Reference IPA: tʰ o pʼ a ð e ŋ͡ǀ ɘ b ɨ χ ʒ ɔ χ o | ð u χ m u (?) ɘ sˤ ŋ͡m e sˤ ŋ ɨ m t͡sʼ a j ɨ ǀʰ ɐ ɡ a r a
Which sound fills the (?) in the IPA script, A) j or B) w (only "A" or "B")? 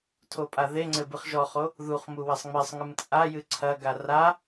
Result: B